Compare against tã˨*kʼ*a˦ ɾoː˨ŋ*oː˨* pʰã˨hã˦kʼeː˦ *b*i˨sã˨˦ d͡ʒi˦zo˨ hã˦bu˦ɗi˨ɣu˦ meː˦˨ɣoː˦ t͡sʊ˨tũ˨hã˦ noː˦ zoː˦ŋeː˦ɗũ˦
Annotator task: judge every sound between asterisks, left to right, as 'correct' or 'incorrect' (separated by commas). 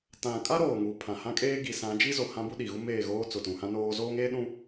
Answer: correct, incorrect, incorrect